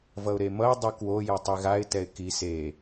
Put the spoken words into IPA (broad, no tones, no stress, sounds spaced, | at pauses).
v ʌ ʊ̯ ɾ e m ʌ ɪ̯ dˤ u k w o j ʌ tˤ i ɣ a ɪ̯ t ɛ ɪ̯ k i s e